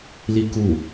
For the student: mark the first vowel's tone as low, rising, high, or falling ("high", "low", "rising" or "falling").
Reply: falling